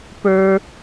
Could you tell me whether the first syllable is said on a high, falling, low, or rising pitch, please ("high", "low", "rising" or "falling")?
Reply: low